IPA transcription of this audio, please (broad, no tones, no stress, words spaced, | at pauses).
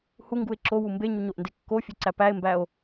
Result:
huŋɡue̯ ǁowu mbeɲuɲoʔnde kːofʲøǀæ pæe̯mbæo̯